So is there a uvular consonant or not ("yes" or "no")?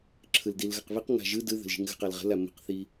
yes